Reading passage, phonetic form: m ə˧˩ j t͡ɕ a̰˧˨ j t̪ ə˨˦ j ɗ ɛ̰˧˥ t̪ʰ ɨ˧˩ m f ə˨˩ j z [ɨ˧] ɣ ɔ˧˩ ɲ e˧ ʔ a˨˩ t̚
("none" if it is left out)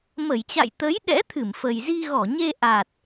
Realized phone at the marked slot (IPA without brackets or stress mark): i˧